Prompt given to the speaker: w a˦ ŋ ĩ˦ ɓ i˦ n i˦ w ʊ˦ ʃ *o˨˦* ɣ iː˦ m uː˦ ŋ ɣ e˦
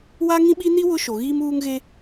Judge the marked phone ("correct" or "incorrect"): incorrect